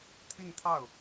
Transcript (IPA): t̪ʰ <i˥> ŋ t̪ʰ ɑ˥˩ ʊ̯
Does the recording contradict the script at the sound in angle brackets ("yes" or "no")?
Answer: yes